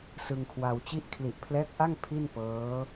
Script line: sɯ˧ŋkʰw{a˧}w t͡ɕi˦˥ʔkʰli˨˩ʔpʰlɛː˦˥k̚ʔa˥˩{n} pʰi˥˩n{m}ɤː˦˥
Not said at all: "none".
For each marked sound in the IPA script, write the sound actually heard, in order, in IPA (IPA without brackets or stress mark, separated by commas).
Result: a˧, ŋ, p